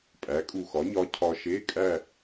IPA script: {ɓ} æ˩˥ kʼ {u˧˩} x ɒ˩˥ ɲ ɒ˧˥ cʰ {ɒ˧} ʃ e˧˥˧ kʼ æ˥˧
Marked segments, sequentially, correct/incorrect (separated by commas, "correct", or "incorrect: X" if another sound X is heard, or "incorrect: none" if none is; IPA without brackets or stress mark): incorrect: pʼ, correct, correct